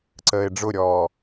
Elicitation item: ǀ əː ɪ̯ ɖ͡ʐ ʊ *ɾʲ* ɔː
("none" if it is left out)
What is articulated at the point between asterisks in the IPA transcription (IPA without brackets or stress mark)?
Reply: ɾʲ